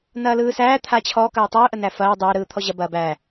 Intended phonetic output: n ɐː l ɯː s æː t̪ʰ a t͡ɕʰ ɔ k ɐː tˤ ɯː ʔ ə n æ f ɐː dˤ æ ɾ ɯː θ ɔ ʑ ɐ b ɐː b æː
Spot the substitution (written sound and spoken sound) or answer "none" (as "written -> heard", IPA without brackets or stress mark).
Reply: θ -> t̪ʰ